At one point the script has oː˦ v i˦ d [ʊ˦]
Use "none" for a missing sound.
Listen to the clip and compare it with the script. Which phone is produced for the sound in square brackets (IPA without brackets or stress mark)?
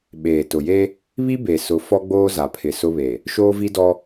ɔ˦